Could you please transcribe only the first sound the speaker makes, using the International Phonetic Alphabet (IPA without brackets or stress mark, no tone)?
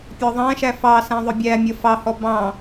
pʲ